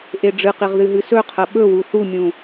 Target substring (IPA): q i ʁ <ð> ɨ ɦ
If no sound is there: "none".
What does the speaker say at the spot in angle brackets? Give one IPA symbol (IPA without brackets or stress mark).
ð